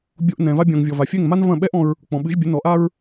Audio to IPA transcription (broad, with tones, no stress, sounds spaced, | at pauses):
bʲ o˧ ʔ n ɛ̃˩ v a˧ bʲ ɔ̃˩ ŋ vʲ ɔ˩ v a˩ fʲ ɛ˥˩ ŋ m a˥ n v ɐ̃˥˩ ɓ ɛ˥ ʔ ɔ̃˧ ɹ | k͡p ɔ̃˩ ɓ ɨ˩˥ ʒ bʲ ɘ˩˥ n ɔ˩˥ ʔ a˥ ɹ